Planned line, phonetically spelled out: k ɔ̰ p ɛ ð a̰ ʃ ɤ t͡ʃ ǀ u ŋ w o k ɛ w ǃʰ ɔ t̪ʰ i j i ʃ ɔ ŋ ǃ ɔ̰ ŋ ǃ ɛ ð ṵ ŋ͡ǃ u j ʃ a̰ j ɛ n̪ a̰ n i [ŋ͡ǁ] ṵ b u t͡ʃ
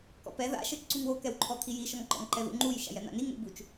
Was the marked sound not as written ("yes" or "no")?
yes